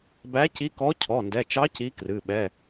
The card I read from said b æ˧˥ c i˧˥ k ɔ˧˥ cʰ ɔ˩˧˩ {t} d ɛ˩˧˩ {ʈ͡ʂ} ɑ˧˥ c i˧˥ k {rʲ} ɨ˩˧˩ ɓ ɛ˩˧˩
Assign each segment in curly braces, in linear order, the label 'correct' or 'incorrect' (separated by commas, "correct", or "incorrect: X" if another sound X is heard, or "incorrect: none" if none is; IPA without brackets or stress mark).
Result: incorrect: n, incorrect: t͡ʃ, incorrect: r